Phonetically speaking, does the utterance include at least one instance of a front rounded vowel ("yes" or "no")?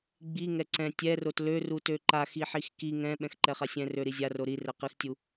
yes